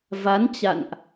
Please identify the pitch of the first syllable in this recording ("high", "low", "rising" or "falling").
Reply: rising